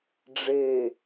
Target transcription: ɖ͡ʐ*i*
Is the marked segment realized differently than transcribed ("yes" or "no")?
yes